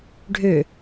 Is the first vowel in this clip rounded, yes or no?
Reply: yes